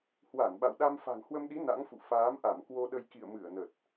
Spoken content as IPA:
h w a˧˩ n ɓ a̰˧˨ w ɗ a˧ m f a̤˨˩ ŋ h w ə˧ m ɗ i˨˦ n a̰˧˥ ŋ f ṵ˧˨ f aː˨˦ m ʔ a˧˩ m k w o˧ ɗ ə˧ j k ḭ˧˨ ə̯ m ɨ˧˩ ə̯ n ə˨˩ t̚

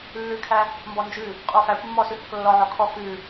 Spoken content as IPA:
lː ʉ kʰ æ | m b ɔ n d͡ʒ ʉ | qʼ o f æ kʷ mː ɔ s ʉ h o k lː ɔ ʕ ɔ kʰ ɔ k ʉ

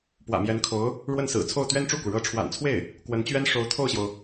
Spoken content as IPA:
p w ä̰˨˩ m j ɛ˧˥ n kʰ o˧˥ ʊ̯ | ɻ w ə˥˩ n s ɹ̩˨˩ t͡sʰ o˥˩ ʊ̯ t̪ ɥ ɛ˥ n ʈ͡ʂ u˥˩ k u˩ ɻ ɤ˧˥ ʈ͡ʂʰ w a̰˨˩ n t͡sʰ w e˥˩ ɪ̯ | k w ə˧˥ n t͡ɕ ɥ ɛ˥ n ʂ o˧˥ ʊ̯ t̪ʰ o˥˩ ʊ̯ ɕ j o˩ ʊ̯

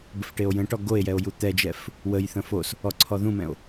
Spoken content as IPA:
b ə f ʈ e o̯ j ə̃ ʈ ɔ ɡ o e̯ j ɛ o̯ j u t̪ ɛ d͡ʒ ɛ f | w ə j θ ə̃ f o s | ɔ ǀʰ ɔ ð ũ m ɛ̃ o̯

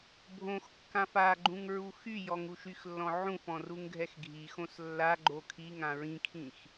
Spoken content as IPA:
bʱ õ x kː ã f a ɡ͡ǃ ũ ŋ ɹ u x y j ɔ ŋ u ʃ y x lː ɔ̃ ʕ ũ f ɔ̃ r u ŋ ɡʱ ɛ x ɡʱ i x õ s lː a ɡ͡ǃ o kʰ i ŋ ã ɹ ĩ kʰ ĩ x

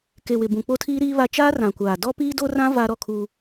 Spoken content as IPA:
k e˨ w ɪ˨ b ũ˨ k͡p o˦ tʰ iː˦ ɾ iː˦ β a˦ t͡ʃ aː˦ r ã˨ kʷ aː˨ d ɔ˦ p iː˦ d o˦ r ã˦ v aː˦ ɾ ɔ˦ kʰ u˦

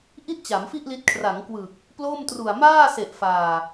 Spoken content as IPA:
ʔ i˥˩ t̚ t͡ɕ a˩˦ m f i˥˩ ʔ l i˦˥ t̚ kʰ r a˩˦ ŋ k w ɯ˨˩ k̚ | p l o˥˩ m t r u˨˩ a̯ m aː˥˩ s e˨˩ ʔ f aː˨˩

